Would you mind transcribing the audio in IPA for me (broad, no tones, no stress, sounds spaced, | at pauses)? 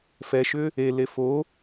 f ɛ ʃ ʏ | e l e f o